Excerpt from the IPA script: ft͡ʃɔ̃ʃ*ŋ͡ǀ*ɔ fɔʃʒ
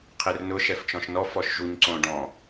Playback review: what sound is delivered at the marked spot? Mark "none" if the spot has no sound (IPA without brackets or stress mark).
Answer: n